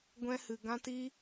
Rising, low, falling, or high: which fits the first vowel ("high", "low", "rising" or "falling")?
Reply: high